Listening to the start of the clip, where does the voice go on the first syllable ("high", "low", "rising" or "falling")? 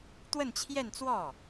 falling